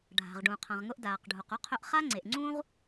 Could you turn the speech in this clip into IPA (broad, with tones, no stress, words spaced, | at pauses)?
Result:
ɖʱa̤˩ʁ ɖũː˩qʰã˩ʁŋʊ˧ʔ daː˩q ɖʱu˩qu˥qʰɵ˧ʔ χa˥ ŋ͡ǀe˩ʔŋ͡ǀũː˥ʁ